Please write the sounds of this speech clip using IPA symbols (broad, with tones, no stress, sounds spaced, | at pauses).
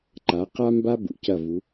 ǃ a˨˦ q a˦ m b a˦ b ṵ˨ c ɐ˦˨ v u˨˦